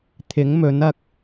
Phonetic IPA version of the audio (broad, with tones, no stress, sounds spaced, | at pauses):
t̪ʰ ɪ˨˥ ŋ m ɵ˨˥ n ɐ˧ k̚